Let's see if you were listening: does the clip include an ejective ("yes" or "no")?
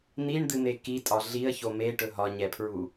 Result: yes